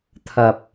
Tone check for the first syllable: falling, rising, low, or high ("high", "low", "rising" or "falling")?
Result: low